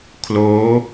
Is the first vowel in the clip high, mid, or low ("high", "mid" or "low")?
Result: mid